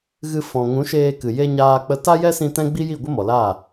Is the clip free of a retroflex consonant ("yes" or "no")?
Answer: yes